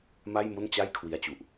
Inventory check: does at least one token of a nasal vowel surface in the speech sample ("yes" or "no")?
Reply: no